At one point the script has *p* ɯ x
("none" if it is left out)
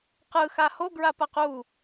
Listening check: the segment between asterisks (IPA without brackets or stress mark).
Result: q